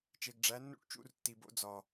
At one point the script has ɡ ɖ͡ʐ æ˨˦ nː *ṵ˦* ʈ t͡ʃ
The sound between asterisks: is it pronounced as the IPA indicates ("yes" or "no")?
yes